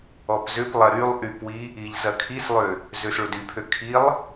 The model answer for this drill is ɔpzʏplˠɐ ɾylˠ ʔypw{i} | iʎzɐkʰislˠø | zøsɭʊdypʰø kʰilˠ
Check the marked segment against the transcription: correct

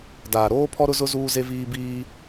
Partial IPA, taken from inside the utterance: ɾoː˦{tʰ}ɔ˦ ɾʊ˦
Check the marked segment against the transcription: incorrect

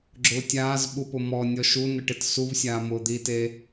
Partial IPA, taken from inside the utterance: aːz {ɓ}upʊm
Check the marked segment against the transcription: correct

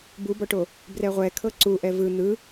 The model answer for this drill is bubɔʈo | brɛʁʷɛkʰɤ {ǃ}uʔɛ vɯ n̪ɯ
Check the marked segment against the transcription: incorrect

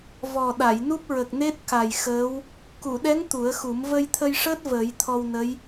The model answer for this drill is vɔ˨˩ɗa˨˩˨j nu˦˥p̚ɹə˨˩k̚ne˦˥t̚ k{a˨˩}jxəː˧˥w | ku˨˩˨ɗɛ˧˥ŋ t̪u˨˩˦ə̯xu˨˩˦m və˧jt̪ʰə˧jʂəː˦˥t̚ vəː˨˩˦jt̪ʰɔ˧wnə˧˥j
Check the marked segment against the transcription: correct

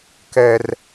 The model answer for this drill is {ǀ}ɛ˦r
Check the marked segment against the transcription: incorrect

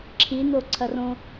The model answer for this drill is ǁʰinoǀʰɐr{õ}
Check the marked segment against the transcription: correct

